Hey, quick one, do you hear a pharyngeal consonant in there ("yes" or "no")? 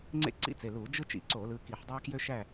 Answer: yes